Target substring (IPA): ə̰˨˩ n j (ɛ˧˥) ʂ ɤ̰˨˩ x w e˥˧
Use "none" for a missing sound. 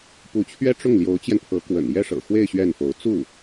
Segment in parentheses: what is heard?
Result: ɛ˥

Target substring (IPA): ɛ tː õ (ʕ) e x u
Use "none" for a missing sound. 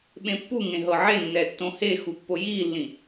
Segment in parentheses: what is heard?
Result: h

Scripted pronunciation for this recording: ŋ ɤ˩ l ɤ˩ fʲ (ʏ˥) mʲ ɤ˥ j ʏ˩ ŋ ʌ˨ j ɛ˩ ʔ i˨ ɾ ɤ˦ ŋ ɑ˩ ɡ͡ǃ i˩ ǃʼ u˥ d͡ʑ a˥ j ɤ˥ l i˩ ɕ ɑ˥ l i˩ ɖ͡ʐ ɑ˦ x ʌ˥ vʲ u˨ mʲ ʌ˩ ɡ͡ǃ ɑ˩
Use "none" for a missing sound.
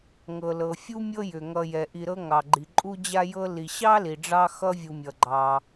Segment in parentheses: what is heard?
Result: u˥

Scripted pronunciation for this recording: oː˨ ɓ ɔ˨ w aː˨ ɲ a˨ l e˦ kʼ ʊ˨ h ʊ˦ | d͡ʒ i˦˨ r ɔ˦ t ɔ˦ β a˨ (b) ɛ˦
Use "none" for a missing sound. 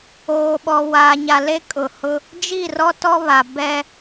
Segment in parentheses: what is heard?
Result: b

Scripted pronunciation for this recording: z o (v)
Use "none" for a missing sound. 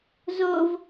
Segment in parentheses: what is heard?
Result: v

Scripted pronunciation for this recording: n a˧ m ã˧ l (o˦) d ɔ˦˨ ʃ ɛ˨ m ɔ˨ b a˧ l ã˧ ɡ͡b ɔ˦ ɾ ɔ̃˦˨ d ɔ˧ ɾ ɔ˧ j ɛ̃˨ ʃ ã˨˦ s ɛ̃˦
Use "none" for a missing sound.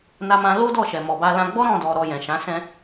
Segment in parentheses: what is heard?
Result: o˦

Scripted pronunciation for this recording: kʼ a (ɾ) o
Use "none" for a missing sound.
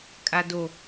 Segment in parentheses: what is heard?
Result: d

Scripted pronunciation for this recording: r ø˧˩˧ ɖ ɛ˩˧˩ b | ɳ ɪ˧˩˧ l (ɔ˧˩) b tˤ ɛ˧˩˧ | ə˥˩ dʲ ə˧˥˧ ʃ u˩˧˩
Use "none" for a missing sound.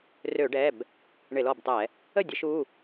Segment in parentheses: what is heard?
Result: ɔ˧˩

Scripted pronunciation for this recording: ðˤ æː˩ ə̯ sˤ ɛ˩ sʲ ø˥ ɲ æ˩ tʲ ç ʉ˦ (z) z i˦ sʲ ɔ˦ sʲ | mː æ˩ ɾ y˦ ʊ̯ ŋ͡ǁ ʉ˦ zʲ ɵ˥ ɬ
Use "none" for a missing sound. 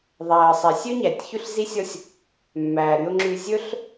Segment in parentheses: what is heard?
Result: ɬ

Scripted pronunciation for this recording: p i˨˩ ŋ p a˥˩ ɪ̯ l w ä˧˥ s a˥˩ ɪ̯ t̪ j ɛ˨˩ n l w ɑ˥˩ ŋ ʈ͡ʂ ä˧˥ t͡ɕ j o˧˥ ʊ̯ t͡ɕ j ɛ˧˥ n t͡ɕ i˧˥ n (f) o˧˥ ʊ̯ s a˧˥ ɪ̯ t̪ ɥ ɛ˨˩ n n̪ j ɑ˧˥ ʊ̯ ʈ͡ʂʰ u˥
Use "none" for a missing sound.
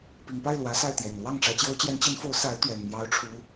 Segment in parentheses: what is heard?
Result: f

